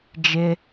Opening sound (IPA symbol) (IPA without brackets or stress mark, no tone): d͡ʒ